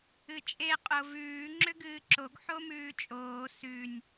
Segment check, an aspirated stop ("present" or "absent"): absent